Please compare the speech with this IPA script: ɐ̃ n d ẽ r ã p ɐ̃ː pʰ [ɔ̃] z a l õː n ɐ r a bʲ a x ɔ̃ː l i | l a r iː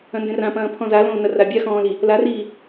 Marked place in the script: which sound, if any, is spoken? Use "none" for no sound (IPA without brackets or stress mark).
ɔ̃